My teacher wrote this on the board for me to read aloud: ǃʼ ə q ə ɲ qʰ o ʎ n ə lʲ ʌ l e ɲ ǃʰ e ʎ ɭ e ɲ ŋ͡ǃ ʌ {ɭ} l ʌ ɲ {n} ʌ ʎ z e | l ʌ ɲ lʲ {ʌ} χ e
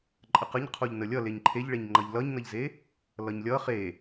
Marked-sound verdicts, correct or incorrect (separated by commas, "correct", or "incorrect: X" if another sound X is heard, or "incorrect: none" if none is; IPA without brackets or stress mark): incorrect: ʎ, correct, correct